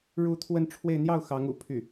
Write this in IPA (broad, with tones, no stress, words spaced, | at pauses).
ɻu˥˧t̪ʰwə˥˧nʈ͡ʂʰwe˥˧ɪ̯ n̪jɑ˥˩ʊ̯xɑ˧˥ŋṵ˨˩ pʰy˥˩